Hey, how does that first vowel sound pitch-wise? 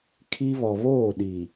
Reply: high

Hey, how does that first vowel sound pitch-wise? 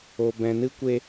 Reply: low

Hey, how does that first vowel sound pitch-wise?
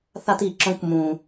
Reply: high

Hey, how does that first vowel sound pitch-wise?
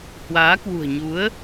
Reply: rising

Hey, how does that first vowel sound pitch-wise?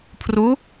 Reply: rising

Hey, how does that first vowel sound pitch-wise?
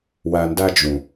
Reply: low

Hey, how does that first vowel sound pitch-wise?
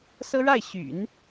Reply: high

